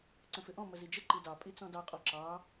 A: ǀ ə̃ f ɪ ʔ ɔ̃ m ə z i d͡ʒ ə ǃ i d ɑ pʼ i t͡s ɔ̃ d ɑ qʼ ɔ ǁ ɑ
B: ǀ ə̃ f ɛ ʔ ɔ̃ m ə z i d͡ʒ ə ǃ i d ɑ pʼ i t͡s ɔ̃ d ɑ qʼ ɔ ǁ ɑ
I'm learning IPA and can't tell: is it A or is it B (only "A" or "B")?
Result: A